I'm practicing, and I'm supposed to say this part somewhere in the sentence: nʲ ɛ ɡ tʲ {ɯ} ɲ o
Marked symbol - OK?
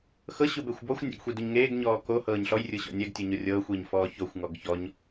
no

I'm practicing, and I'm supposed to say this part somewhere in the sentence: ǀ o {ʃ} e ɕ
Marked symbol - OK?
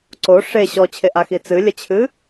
no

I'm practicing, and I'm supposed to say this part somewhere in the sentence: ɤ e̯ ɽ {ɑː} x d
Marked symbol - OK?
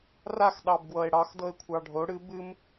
no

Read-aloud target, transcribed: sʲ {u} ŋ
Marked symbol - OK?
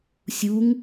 yes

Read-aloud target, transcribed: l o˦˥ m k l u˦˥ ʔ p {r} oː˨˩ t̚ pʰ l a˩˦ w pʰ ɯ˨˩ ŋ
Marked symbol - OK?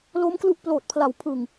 no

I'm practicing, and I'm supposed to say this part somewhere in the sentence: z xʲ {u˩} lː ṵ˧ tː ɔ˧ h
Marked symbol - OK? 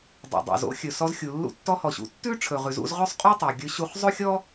yes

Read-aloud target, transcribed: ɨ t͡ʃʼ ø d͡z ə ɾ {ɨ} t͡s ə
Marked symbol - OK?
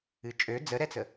no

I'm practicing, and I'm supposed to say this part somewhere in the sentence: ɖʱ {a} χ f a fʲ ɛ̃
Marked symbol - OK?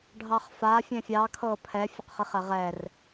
no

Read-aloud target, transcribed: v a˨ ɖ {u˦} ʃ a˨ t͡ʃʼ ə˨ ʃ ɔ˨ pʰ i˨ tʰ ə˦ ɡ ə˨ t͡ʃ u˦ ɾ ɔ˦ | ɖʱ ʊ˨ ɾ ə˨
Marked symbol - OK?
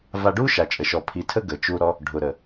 yes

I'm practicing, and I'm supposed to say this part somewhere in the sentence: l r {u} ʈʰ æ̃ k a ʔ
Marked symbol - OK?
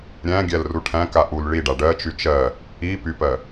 yes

